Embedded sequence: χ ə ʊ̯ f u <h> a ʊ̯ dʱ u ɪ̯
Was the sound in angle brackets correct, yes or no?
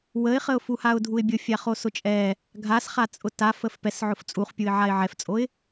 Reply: yes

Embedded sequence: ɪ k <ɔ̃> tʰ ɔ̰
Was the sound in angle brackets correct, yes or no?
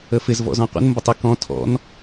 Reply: yes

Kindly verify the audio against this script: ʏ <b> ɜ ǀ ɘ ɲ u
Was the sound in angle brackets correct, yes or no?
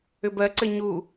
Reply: yes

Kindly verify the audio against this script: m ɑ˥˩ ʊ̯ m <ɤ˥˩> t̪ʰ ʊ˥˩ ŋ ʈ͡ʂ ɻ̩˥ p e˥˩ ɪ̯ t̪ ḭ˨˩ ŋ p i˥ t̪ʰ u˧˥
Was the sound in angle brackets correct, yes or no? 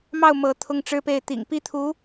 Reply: no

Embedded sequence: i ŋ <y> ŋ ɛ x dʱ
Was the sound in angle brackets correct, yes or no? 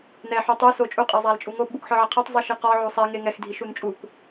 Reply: no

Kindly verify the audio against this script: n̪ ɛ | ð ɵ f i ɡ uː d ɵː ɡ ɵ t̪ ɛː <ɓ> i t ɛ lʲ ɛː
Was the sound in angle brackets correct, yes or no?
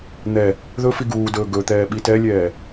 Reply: yes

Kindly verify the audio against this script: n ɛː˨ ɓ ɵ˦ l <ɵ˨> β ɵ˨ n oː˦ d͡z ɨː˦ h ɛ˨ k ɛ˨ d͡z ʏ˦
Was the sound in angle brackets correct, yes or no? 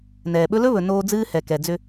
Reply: no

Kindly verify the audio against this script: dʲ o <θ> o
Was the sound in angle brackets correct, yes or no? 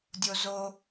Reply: no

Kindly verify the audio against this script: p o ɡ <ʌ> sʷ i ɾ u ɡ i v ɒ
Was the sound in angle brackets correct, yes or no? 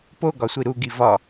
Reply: no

